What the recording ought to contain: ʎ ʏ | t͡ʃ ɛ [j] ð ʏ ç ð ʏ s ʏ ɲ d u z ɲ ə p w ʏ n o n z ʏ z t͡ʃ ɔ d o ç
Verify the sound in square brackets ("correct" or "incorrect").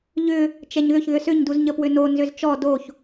incorrect